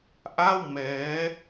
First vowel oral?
yes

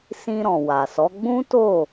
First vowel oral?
no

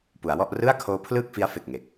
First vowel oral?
yes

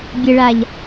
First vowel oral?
yes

